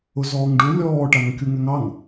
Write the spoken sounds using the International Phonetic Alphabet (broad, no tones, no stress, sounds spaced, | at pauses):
ʊ z ɔː ŋ ɖ u lʲ ɔː ʈ a ŋ kʲ u ŋ ɛ ŋ ɑ ŋ